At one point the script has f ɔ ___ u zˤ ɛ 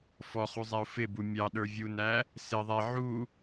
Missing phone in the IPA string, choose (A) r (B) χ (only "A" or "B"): B